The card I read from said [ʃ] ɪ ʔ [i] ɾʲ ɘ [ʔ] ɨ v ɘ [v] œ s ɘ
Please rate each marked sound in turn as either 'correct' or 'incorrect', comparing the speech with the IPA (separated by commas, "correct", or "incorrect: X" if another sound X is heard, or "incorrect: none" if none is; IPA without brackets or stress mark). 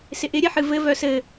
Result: incorrect: s, incorrect: ɪ, incorrect: ħ, correct